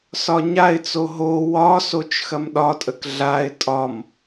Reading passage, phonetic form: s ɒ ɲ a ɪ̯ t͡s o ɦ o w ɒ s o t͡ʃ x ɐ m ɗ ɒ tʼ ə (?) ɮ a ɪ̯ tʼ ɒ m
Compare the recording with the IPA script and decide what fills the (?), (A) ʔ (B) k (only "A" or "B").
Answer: B